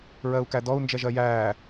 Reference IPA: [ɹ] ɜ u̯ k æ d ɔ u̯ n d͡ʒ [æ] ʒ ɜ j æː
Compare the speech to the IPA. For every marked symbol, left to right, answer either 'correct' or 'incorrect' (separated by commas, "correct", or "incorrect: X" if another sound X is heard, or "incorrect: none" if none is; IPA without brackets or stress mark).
correct, incorrect: ɛ